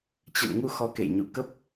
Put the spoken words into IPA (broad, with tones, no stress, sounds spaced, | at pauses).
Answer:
t͡ɕ ə̰˧˨ n ŋ u˧ x ɔ˨˦ k ḛ˧˨ j ɲ ṵ˧˨ k ə˦˥ p̚